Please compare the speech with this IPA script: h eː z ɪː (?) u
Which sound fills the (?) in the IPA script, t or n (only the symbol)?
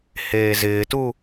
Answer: t